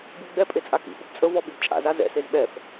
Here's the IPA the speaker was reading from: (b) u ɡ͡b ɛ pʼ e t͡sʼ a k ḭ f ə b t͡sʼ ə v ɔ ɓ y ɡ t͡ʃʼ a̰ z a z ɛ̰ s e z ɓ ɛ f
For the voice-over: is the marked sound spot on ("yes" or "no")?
yes